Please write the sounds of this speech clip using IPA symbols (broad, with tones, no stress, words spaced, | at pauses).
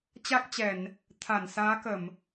t͡ɕa˦˥k̚t͡ɕɛ˧˩˨n | t̪ʰa˧˩nsaː˨˦kə˧˩˨m